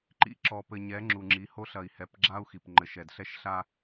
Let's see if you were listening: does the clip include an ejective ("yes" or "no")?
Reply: no